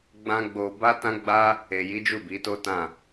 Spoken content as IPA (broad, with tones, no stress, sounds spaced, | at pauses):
ɡ͡b ã˦ ɡ͡b o˧ b a˦ t ã˦ ɡ͡b a˦ | e˨ j i˨˦ d͡ʒ u˦˨ b i˨˦ t o˦ t ã˦˨